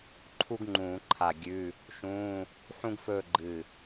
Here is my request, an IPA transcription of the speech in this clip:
ǃʰu˥ɡŋ͡ǃũː˧˩˧ǃʰa˧˩ ɡʲʉ˧˥˧ | ʃũː˧˥˧ | ħũ˥ɡfɵː˥˧ ɡ͡ǃɨ˧˩

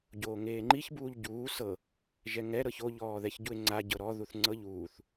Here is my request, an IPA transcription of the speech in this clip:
ɟoːŋeːŋ͡ǃiçbuːʎ ɟuː sɤ | ʒɛŋɛɾɤç oʎɔːðɛç ɟue̯ŋ͡ǀa ɟɤɾɔ ðuθŋ͡ǀɤʎuːθ

